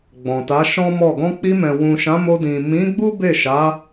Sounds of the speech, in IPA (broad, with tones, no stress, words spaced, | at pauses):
ɡ͡bɔ̃˨ta˨˦ʃɔ̃˦mɔ˦˨ ɡɔ̃˧k͡pi˧mɛ̃˨ wũ˨ʃã˨˦mo˧ dĩ˨mĩ˨˦ɡ͡bu˦ be˦˨ʃa˨˦